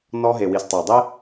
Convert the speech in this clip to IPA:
nɔ˧ɦe˨wi˨s tˤɛ˨dˤe˦

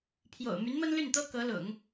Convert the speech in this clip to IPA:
pʰjo̰˨˩ʊ̯ my˧˥nmə˥nly˥˩nt̪ɤ˥ kɤ˧˥lʊ̰˨˩˦ŋ

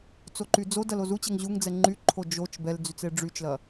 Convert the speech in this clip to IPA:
t͡soǃyd͡zodɐl ozut͡ɕɛŋ ʑuŋd͡zɛ ŋ͡ǃyǃʰo d͡ʒot͡ʃ bɛld͡zyt͡s eɖ͡ʐyt͡ʃlɐ

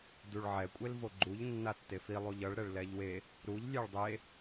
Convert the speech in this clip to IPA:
duɭʕɛ kʷʼelvoɡ͡ǃuʎ nːatːefi lˠuʎʌɭ ɾɛɭlɛʎwe | ɾuʎ lʲeɭdˤe

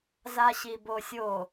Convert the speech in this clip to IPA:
zaɕibosʲo

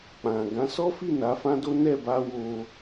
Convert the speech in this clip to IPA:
k͡pã˨ ɡã˨˦sɔ˦fi˦˨ na˨˦fã˦do˦ nɛ˦˨ba˧ wo˧

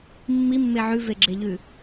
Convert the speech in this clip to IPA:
mːimːe ʕʉveɡ͡ǁeʎʉ

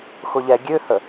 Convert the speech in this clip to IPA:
xʊʎɛɡʲøhə

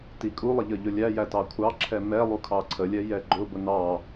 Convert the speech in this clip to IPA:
tikʼulˠɪ ʎəʎʊlʲæjæ tɑkʷʰɑǁʰɛ mɛ lˠukʰɑǀʰəlʲɛ jɛɡ͡ǃʊbʊ nɑ

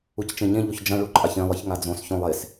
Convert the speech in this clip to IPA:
uct͡ʃẽɲẽ ʎoçd͡ʒɐ̃ ɭuǃʼaçẽ lˠɨçŋad͡zõs çõlˠes

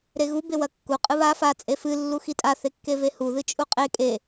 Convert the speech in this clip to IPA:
ɾeɣu bewɐkːu qʼɨβa fa t͡sʼefɨ lːuxitʼa θekːevehu ðɨt͡ʃʼuqʼe kʼe

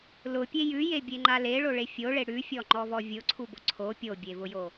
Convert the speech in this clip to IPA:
lʊpʲe jʉjebʲeŋ͡ǃa leɭoɭe fʲoɭe ɽʉfʲɔŋ͡ǃɔvɔ vʲʊǀʰubʊ ǀʰo pʲobʲevʊjo

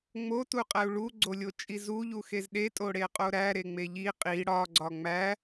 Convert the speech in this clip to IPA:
ŋ͡motuqʼæu̯ ɭuɡ͡ǀolʲot͡ʃʼi zuʎuxez ɗetʼoɽeqʼo ɾæɾeŋ͡me ʎi qʼi ɽɒɡ͡ǀɒ ŋ͡mæ

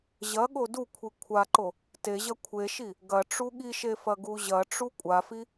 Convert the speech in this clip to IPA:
ʑɐɠo dukʷʰi kʷʰaǃo | te ʑɐkʷʰeʃi | ɡɐ ʈ͡ʂuɠiʃe fɐɡuʑɐʈ͡ʂu kʷʼafi

